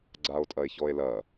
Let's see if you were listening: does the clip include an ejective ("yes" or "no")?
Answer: yes